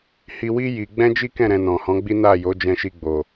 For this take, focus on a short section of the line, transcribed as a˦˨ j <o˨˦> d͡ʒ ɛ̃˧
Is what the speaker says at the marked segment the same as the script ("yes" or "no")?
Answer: yes